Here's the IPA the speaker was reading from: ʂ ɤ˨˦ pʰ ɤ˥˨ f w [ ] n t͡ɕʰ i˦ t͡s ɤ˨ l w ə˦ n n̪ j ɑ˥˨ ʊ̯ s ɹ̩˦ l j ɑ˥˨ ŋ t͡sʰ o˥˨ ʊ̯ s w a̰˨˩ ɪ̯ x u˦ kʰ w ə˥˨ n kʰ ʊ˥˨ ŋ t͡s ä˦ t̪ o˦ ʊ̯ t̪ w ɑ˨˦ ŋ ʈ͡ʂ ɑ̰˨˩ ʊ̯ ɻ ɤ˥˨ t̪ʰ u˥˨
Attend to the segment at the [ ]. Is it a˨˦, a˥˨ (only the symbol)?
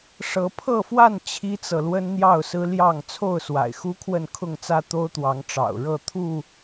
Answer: a˥˨